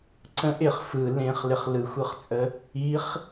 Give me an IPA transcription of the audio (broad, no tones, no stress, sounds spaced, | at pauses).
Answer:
ǀ ə̃ ʔ ɪ χ f ɯ l ẽ χ l ɪ χ l ɯ xʷ ɯ χ t͡sʼ ə | i χ